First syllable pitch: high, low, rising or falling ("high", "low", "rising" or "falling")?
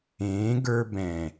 rising